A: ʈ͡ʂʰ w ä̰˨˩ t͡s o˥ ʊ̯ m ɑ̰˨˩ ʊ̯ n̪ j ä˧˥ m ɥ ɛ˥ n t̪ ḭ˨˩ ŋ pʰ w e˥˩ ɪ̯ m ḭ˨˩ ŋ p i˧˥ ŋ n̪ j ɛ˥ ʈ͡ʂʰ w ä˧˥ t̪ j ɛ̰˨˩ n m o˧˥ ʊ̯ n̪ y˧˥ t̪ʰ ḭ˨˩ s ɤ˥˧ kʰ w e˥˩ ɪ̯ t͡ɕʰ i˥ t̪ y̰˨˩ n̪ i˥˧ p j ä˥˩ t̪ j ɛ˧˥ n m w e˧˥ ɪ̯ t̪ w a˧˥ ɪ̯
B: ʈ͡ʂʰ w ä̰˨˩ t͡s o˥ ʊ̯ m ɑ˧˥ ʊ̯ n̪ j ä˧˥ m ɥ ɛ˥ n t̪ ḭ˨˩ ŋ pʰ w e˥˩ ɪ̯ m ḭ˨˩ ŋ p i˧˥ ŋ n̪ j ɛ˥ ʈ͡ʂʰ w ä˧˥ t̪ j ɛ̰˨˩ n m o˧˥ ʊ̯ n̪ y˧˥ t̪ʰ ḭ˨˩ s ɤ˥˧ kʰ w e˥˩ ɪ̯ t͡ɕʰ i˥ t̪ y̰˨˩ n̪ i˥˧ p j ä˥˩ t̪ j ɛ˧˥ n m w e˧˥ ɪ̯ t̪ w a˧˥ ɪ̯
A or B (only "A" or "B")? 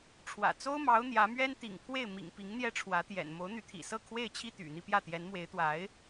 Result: B